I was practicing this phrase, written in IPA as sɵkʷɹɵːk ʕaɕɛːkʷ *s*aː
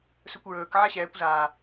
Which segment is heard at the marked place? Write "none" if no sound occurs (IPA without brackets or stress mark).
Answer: z